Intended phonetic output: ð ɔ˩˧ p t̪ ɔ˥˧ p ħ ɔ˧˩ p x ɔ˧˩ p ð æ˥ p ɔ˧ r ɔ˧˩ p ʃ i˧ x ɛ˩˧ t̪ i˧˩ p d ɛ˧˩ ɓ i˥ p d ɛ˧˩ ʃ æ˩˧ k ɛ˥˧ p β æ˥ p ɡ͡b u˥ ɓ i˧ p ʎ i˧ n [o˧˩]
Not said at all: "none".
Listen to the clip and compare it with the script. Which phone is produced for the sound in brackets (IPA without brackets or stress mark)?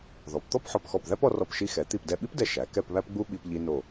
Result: o˧˩